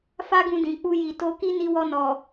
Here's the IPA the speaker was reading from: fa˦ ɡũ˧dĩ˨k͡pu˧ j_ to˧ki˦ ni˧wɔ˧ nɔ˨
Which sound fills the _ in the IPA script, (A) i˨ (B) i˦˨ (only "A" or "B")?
A